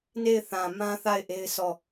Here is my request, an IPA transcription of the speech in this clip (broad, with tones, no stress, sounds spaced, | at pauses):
n e˦˨ ɪ̯ θ ã˨ m ã˦ θ a˦˨ ɪ̯ ʔ e˦ ɪ̯ sʰ ɔ˦˨